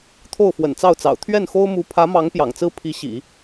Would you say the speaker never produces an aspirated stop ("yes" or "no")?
no